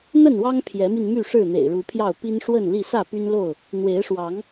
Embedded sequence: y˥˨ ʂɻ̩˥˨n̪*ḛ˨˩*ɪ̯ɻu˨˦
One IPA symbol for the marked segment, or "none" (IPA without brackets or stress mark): ḛ˨˩